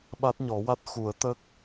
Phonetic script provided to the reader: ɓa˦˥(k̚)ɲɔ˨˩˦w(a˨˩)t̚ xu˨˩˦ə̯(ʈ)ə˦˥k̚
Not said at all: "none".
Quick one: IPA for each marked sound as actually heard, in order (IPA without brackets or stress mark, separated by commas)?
t̚, a˦˥, t̪